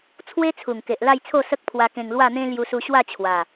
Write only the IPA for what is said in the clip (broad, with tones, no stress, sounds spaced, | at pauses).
t͡sʰ w e˦ t͡sʰ u˨˩ ŋ k e˨ ʔ l a˥˧ j t͡sʰ o˥˧ s ə˦ k̚ pʰ w a˧ k ẽ˧ ŋ l w a˥˧ n̪ ẽ˦ l j u˧ s u˧ ɕ w a˥˧ t͡ɕʰ w a˨˩